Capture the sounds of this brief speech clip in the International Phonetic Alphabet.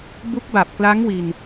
bu˦˥k̚ba˨˩p̚kla˦˥ŋ wi˧n

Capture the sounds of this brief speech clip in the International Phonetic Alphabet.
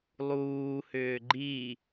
lˠuː hʏːɡ͡ǃi

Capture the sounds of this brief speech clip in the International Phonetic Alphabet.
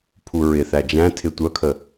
pʰuɹɪθæ d͡ʒæ̃tʰɪ tʷœkʰə

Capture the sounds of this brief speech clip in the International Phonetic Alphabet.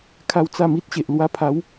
kʰa˦wt͡sa˥˧mi˦t̚ɕe˨ʔ lwa˧pʰa˨˦w

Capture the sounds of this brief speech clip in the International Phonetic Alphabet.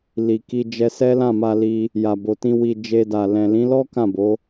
li˨ki˧ d͡ʒɛ˧sɛ˦ lã˦˨ma˧li˧ | ja˨bo˨tĩ˧ wi˨ d͡ʒe˧da˨ lɛ̃˨lĩ˨˦lɔ˦ kã˦˨bo˨˦

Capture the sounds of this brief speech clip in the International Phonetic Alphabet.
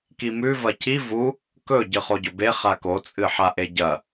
kimʉ vɐcʰi vu | kɵ ɟɨχoɟɵbe χako t͡sʼɨħaʔeɟɐ

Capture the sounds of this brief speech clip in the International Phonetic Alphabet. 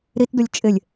ɾitdʊlʲ t͡ʃʼɪlʲ

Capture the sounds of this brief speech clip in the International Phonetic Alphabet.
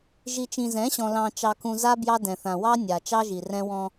ʒi˨t͡ʃĩ˨zɛ̃˨˦ɕɔ̃˨ lɑ̃˨ t͡ʃɑ˨kũ˨ za˦ bjɑ˦dɛ̃˨θã˨ wɑ˦ nʲa˨ t͡ʃɑ˦ʒi˨ rɛ̃˦wɔ̃˦

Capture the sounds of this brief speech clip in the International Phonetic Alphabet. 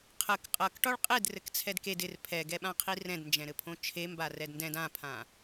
qʰək qʼʌk ʈɒɭqʼed rɘkt͡sʰɛdked ɪr pʰɛɡɛɓãqʰi rɛ̃dnd͡ʒɛ̃ɾɘpʰõ t͡ʃʰemba rɛdndɛ̃d ãpʰã

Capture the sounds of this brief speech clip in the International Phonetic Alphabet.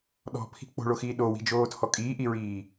ɗɔ̤pʰi̤ k͡po̤ɭoxiː ɗowi̤d͡ʒoːtʰɔ kʼiːʔiɹiː

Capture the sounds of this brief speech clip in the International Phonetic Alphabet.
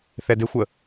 θɛdɪxʷə

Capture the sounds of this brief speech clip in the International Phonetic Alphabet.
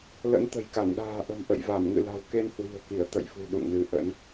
lə̰˧˥nt̪ə̤˨˩jka˧˩n ɗa̤ː˨˩ʔə̤˨˩m ʔə̰˧˨jva˧˩m ŋɨ̰˧˨la̤˨˩w ke˧nhwi̤˨˩ə̯ki˧˩ə̯ t̪ə̰˧˨jfṳ˨˩ ɗṵ˧˨ŋnɨ˨˦ʔə̰˧˥n

